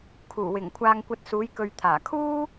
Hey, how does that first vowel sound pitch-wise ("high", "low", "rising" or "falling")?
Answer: low